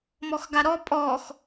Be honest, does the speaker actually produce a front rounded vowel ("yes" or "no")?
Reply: no